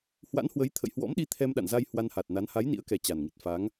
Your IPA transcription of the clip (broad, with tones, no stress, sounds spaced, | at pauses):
h w a̰˧˥ n h w ə˨˦ j t̪ʰ ə̰˧˨ j h w ɔ̰˧˥ m ɗ i˧ t̪ʰ ɛ˧ m ɗ a̰˧˨ n z a˧ j h w a˧ n h a˨˩ t̚ n a˨˦ n h a˨˦ j n ḭ˧˥ ə̯ k ɛ˨˩ t͡ɕ a˨˩ n ŋ i˨˩ t̚ f a˨˦ ŋ